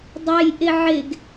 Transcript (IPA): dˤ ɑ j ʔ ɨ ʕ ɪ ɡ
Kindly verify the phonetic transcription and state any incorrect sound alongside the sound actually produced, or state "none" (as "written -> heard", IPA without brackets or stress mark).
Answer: ɨ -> ɪ